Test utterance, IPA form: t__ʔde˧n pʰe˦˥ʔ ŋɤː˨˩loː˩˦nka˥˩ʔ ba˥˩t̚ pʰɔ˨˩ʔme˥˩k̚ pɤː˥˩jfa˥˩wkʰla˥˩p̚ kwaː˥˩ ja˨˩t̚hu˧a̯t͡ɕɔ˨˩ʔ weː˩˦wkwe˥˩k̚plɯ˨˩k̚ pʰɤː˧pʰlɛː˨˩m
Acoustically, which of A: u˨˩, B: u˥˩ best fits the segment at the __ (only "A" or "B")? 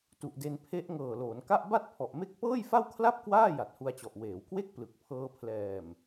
A